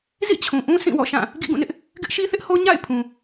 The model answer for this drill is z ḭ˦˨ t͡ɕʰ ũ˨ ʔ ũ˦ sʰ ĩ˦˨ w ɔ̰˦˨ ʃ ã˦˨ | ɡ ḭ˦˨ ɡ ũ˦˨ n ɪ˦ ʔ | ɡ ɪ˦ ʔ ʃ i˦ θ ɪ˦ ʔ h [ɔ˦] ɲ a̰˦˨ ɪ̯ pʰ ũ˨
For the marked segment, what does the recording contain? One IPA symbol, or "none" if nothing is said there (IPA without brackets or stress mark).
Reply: o˦